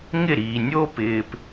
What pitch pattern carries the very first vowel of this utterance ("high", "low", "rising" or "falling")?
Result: falling